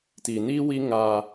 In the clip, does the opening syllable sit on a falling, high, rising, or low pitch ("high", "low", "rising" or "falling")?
low